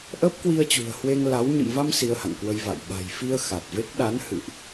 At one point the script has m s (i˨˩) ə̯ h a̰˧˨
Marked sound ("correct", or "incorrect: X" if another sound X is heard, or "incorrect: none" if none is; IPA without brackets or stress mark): incorrect: i˧